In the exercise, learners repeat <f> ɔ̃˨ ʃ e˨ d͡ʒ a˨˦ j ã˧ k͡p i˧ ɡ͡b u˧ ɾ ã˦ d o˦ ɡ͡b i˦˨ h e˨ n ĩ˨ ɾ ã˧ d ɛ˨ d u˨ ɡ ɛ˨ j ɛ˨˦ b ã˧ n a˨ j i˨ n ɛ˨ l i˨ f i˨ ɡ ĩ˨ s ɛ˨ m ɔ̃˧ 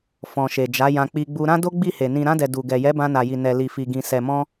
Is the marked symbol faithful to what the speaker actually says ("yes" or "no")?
yes